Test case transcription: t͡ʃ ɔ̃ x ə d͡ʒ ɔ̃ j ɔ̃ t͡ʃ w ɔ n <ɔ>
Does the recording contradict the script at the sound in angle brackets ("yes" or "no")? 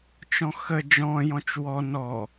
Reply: no